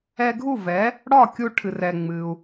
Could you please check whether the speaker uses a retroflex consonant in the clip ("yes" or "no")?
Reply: yes